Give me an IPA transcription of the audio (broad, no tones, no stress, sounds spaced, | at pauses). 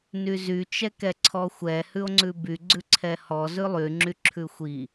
n y z y t͡ʃ ɛ k ɛ ǀʰ ɔ xʷ ɛ h ʉ o̯ ŋ͡ǀ ʉ b y ɡ͡ǀ ʉ ǀʰ ɛ h ɔ z ʉ lˠ y ŋ͡ǁ y ǁʰ ʉ xʷ i